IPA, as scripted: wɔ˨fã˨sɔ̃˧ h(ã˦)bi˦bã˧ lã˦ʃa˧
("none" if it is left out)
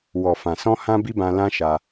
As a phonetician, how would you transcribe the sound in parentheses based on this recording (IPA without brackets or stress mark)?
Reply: ã˦